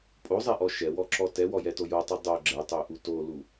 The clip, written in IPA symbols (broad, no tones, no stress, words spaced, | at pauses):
pʼozˤɛʔɔ ʃɛwɔǁɔ tɛwɔjɛto jotˤu dˤo ɡ͡ǁɛtˤøʔu tolu